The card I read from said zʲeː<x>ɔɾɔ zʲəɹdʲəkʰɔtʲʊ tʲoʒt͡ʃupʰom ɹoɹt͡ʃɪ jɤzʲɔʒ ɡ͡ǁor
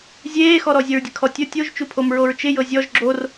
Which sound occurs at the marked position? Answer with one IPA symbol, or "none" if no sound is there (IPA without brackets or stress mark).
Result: x